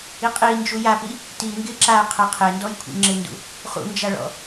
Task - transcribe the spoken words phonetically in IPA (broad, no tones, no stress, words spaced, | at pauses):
iqʼi nd͡ʒujapi | tiŋɡɪ ǁa qʰɛqʰendɔj kʷʰḭŋ͡ǁɪndṵ | χṵnd͡ʒaɭɔ̰